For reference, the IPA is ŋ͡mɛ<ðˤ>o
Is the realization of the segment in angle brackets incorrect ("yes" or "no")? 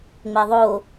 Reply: no